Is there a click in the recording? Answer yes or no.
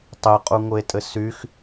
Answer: no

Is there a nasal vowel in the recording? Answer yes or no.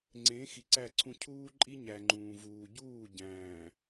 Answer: yes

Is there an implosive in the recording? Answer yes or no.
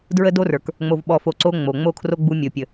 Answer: yes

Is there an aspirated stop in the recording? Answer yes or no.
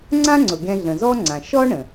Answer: no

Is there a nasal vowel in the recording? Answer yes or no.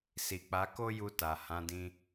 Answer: yes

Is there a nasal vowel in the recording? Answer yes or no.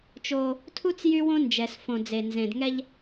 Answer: yes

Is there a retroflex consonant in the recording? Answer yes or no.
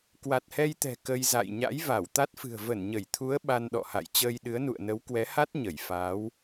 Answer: no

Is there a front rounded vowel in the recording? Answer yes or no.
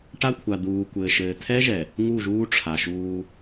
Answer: no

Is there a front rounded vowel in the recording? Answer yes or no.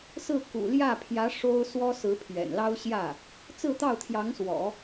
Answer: no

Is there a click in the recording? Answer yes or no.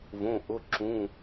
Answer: yes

